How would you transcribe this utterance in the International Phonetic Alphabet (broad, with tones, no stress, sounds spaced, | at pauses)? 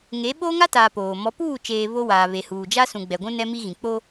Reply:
ŋ e˨˦ ɓ oː˦ ŋ a˦ t aː˨ p oː˨ m ɔ˨˦ p uː˦˨ t͡ʃ eː˨ β o˦ w aː˨ β e˨ h uː˨ d͡ʒ a˦ s ũ˨ ɡ͡b ɛ˨ ɡʷ ũ˦ n ɛ˦ m i˦ ɣ ĩ˨ k͡p o˦